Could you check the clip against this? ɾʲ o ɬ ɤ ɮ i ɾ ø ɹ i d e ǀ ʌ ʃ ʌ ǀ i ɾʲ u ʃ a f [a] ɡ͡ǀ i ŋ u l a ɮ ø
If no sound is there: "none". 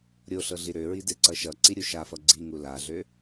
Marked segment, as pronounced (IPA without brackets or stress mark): ʌ